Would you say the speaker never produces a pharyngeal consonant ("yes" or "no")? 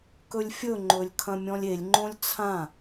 yes